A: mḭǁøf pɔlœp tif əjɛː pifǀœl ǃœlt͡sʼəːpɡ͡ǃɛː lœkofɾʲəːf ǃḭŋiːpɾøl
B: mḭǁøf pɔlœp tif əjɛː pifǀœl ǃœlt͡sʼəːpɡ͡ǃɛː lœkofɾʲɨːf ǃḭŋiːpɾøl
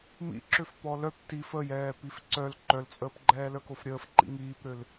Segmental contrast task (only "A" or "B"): A